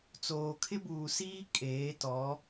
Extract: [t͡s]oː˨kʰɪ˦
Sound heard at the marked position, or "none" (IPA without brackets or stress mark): t͡s